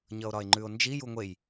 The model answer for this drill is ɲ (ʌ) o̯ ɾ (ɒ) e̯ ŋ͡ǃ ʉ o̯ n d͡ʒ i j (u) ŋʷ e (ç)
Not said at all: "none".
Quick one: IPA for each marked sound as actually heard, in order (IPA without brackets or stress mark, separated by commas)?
ʌ, ɒ, u, j